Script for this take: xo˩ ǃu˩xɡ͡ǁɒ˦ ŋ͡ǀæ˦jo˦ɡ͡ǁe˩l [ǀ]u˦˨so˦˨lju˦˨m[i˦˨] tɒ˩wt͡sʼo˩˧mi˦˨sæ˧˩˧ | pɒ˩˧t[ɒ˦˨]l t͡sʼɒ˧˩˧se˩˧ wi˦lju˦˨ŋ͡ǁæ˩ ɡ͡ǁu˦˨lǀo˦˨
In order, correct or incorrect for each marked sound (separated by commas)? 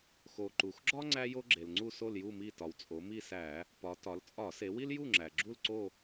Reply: incorrect, correct, incorrect